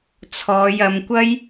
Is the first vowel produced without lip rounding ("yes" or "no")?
no